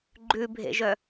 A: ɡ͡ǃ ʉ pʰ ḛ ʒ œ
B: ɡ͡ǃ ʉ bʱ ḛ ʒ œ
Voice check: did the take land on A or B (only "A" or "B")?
B